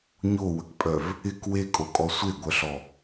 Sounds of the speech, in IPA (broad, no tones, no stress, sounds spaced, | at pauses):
ɲ o w ə k pʼ œ v | ɪ k w e kʼ o kʼ ɔ sʷ e ɡʷ œ ɬ ɔ